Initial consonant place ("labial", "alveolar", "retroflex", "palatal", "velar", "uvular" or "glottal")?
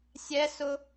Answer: alveolar